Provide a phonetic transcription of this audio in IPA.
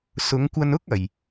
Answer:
sʊ˨˧ŋkʷɐ˧nʊ˥k̚ ɐ˧j

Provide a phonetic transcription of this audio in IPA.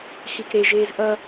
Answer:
xikɾeʒeːz ʔʌ

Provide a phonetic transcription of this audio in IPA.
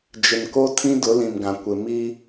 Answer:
d͡ʒɪ˨nko˦tʰĩ˦ dʊ˨˦lĩ˨mɡã˨ kʷɪ˨mi˦

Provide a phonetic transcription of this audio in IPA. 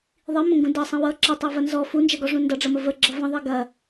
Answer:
ðˤimə̃ŋɡũ dʌsˤə̃ wʌ ǁʌtˤɜvɐ nzɔ fund͡ʒɐɡɔʐũ ndʌɖ͡ʐɐmə vəɡ͡ǁʌ və̃ðˤi ɡɐ

